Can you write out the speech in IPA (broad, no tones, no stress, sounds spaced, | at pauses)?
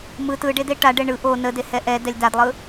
m ɯ t ɯ ɖ e d e ʈ a ɖ ɛ ɳ ɯ ʔ o n ə d e h ɛ ʔ ɛ d ɛ lʲ d a d lˠ ɯ